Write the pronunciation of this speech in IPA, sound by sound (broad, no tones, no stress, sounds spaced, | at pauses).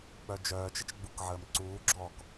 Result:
k͡p œ d͡ʒ œː t͡ʃ ə t͡ʃ ɡ͡b u k ʕ əː m ǀ uː ɡ͡ǁ ɔː k